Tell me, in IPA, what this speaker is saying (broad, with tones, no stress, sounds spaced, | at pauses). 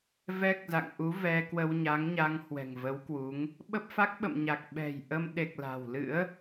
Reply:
v ɛ˦˥ k̚ z a̰˧˨ ŋ ʔ u˨˦ v ɛ˧ k w ə˧ w ɲ a˨˦ ŋ ɲ a˧ ŋ h w ɛ̤˨˩ ŋ v ə˨˦ w k w u˨˦ ŋ | ɓ ə˦˥ p̚ f a˦˥ k̚ ɓ ə̰˧˨ m ɲ a˨˩ k̚ ɓ ɛ̤˨˩ j ʔ ə˧ m ɗ e˨˩ k̚ l a̤˨˩ w l ɨ̰˧˥ ə̯